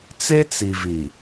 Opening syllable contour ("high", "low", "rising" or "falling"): high